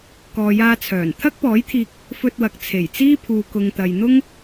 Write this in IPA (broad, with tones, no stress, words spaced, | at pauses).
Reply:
kɔː˨jaː˧t͡sʰœː˨˩n t̪ʰɐ˥k̚pɔː˨˥jt̪ʰiː˧k̚ | fɵ˧t̚wɐ˨k̚ t͡sʰe˨˩jt͡siː˥pʰuː˨ kʊ˨ŋt̪ɐ˨jn̪ʊ˥ŋ